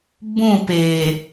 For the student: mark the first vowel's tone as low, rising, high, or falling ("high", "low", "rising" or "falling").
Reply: falling